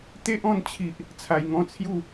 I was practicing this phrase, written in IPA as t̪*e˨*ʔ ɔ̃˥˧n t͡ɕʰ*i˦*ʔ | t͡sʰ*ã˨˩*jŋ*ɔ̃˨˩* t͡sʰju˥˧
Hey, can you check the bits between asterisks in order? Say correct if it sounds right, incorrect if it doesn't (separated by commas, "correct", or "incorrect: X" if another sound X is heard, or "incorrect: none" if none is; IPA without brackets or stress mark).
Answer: incorrect: e˦, incorrect: i˨, incorrect: a˨˩, incorrect: ɔ̃˧